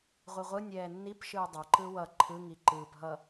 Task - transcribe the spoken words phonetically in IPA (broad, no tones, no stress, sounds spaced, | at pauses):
ʁʷ i ʁʷ ɯ nʲ ɛː nː i p ʃ ɯː dˤ ʌ ǃ ɯ w ʌ ǃʰ ɯ ŋ i ǃ ɯː p ɦ ʌ